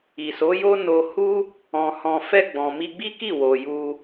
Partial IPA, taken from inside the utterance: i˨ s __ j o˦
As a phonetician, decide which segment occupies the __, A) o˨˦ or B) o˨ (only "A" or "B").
A